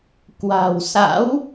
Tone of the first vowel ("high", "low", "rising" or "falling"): low